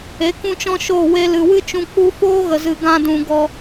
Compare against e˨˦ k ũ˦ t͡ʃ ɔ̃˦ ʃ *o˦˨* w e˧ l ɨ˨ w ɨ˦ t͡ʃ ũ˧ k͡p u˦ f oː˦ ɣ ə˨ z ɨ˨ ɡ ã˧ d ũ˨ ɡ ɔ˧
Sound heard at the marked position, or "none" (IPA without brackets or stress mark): o˦˨